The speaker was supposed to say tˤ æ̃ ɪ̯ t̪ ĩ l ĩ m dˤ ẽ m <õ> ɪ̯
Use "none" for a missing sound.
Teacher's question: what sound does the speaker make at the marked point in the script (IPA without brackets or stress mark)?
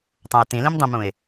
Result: ũ